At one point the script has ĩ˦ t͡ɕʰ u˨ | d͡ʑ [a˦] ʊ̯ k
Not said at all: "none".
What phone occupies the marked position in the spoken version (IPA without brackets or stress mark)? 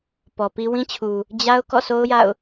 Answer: a˦